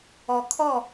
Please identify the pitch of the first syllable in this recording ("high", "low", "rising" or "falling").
low